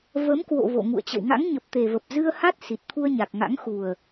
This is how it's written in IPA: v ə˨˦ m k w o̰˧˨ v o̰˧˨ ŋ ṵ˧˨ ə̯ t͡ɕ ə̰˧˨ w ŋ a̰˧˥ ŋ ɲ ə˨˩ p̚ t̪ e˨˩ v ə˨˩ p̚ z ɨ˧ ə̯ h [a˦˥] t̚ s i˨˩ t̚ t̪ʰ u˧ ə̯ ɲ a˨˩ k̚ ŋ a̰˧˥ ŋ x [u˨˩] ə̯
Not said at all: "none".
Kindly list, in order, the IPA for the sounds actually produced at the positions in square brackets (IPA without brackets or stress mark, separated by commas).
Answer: a˦˥, u˨˩